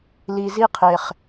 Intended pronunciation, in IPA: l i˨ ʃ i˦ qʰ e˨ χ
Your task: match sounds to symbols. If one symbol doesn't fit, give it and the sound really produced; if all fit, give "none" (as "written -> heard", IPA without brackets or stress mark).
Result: ʃ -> z